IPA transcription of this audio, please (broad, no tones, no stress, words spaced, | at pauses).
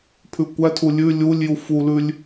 pʰʉkʷætʰu lʲʉ lʲulʲju fulʉlʲ